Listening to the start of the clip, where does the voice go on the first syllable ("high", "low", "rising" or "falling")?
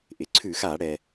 low